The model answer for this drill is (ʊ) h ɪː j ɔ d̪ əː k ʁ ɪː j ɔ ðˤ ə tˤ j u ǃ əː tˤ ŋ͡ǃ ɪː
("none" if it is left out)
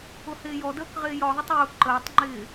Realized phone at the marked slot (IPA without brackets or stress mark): ʊ